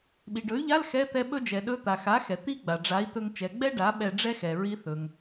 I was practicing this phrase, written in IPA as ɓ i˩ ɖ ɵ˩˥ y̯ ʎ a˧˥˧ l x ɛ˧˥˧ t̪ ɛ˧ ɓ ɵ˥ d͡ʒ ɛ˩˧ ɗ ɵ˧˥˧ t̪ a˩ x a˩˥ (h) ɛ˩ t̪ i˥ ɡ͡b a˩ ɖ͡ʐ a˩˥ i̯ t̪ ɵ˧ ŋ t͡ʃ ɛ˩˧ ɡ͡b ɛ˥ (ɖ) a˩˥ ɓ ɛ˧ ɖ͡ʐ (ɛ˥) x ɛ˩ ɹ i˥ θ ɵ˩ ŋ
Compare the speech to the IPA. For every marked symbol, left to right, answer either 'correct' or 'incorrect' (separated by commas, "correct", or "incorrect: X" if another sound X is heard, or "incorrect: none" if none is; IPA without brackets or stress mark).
incorrect: x, correct, correct